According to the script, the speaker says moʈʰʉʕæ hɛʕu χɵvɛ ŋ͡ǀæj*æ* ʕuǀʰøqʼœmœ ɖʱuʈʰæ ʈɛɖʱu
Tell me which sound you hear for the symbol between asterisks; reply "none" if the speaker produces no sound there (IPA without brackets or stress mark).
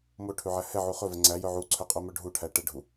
œ